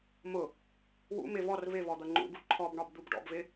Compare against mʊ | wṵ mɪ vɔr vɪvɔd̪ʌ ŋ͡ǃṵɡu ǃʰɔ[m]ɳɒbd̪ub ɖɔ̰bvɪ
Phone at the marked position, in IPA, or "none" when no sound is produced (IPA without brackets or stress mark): b